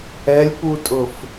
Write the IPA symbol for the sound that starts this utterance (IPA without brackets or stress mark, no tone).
ɛ